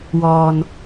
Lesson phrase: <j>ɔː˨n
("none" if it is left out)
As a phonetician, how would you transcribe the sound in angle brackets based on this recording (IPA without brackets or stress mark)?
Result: w